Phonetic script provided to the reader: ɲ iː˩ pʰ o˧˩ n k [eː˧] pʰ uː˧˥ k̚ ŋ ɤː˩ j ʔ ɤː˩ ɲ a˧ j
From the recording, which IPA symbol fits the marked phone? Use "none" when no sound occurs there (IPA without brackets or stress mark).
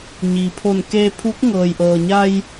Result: eː˧